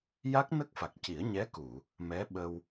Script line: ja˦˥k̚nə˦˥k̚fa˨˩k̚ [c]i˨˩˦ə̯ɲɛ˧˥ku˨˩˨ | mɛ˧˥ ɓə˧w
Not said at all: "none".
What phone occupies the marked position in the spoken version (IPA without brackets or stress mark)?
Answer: c